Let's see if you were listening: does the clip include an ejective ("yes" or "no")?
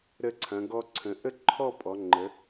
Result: yes